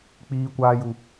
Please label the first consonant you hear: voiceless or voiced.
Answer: voiceless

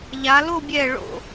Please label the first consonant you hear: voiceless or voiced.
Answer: voiced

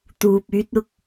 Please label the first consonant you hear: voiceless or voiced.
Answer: voiceless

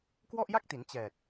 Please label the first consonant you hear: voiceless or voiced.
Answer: voiceless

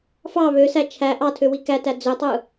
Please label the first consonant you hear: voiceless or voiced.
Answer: voiceless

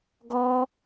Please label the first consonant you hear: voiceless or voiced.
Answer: voiced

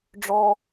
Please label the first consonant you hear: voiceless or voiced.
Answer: voiced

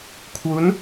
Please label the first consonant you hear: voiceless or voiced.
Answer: voiceless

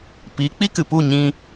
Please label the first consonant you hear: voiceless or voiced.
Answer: voiceless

